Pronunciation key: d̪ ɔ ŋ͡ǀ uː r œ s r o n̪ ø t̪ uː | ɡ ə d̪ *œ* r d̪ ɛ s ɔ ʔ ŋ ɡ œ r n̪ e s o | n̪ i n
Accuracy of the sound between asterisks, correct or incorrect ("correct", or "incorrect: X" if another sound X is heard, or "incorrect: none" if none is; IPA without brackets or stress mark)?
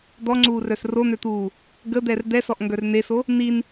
incorrect: ɛ